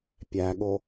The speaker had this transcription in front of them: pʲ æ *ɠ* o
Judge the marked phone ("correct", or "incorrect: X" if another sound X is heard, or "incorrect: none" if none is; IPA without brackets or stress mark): correct